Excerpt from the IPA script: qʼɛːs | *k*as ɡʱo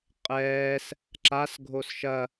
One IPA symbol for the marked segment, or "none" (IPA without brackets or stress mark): ǁ